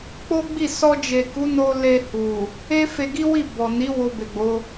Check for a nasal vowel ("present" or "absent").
absent